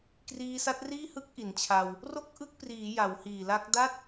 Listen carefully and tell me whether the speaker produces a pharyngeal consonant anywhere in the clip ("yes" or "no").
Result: no